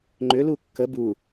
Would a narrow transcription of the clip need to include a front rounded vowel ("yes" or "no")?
yes